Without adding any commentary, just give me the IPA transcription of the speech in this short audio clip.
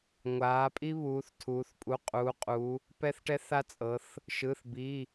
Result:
ŋʷaː˩˧pʼi˦ βuː˩˧θ tʰuː˩˧θpʼu˩˧˩ qʼuː˩˧qʼu˩˧ | pɛ˦θʈɛ˦θa˦t͡sʼɤ˩˧θ | ʃɯ˩˧˩θbi˩˧˩

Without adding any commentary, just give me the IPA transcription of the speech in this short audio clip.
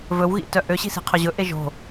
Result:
vɵwɣḭtœ ʔøɕi̤ si̤qʰɵʑɵʔe ʒo̤

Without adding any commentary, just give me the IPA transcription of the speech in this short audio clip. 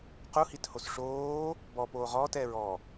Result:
quhithos ʂoː | bɔpoː ʁɔːtɛːɹ ɔ

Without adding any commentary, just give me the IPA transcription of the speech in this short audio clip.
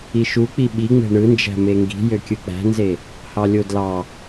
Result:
iʃuk͡pi ɓiŋ͡me̤ ɳɯnd͡ʒæ̤ meŋɡi̤ jøkʲɯk͡pæ̤nze | hɑlʲodlɑ

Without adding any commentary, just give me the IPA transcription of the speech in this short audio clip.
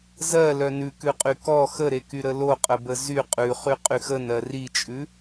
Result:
zɜlœ nʉkʉqʼy kɔ xəɾekyɾə loqʼəbə zy qʼʉχyqʼyx ənɜ rit͡ʃʼʉ

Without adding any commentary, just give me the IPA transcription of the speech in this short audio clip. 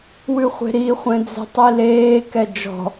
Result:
wʉχʷe̤ɾi χʷɛ̃d͡ze̤tˤileː kɛd͡ʒɔ̤

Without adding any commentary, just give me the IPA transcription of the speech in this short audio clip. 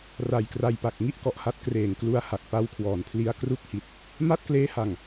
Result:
ra˨˩jkra˧jpa˨˩k̚ ŋi˦˥ʔkɔ˨˩ʔha˦˥t̚ kreː˨˩ŋklu˧a̯ha˨˩k̚ pa˦˥wkʰwɔː˨˩npʰli˦˥a̯ kru˦˥k̚hi˨˩t̚ | ma˥˩t̚kleː˦˥ha˨˩ŋ

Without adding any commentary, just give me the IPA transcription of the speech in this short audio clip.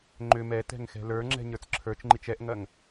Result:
ŋ͡ǃʏ mɛ tɛ̤ŋxɛ̤lə˞ŋ͡ǁɛ̤ ɲə˞t͡sǁʰə˞t͡ʃŋ͡ǃit͡ʃ ɛʔŋɐŋ

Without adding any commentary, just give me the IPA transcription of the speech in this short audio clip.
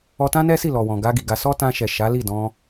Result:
ɔ˧tã˦nɛ˦ si˦˨lɔ˨wɔ̃˨ɡa˧ ɡi˨ɡa˧ sɔ˦tã˧ʃɛ˨ ʃa˨˦li˦˨dɔ̃˧

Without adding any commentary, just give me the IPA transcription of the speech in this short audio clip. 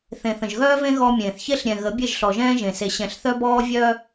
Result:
θẽ˨θə̃˨ʒɣœː˦vẽ˦ ɣɔ˦mʲẽː˨θ çe˦ɬɾʲɛ̃˨ ɣə˨˦bʲe˦˨ʒɬɔ˨ʒɛ̃ː˦ ʒẽ˨se˨ ɕɛ̃˨ɬθœ˦bɔː˦ vʲœ˦

